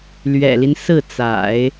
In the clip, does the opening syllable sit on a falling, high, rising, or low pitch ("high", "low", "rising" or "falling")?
low